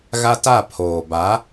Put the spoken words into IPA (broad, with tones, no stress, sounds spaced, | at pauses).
ɣ a˦ t a˦˨ pʰ oː˨ b a˨˦